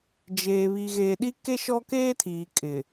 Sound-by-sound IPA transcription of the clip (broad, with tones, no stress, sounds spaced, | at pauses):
d͡ʒ eː˨ β i˨ ɣ eː˨ ɗ i˦ k e˦ ʃ ɔ˦ k eː˦ tʰ iː˨ kʼ ɪ˨